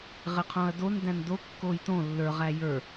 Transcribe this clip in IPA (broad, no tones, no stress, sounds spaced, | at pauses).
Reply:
ʁ ɪ qʰ õ ɐ̯ d o n d æ̃ n d o kː o j t õ lː ə˞ ʁ æ j ə˞